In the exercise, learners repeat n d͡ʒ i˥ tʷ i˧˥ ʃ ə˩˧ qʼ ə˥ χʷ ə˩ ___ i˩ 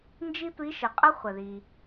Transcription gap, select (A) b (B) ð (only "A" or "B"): B